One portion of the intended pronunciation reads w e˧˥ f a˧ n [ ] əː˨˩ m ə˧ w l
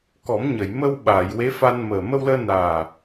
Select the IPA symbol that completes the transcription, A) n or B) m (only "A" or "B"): B